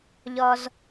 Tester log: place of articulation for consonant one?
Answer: palatal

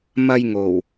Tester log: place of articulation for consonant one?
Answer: labial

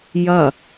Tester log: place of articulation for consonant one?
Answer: palatal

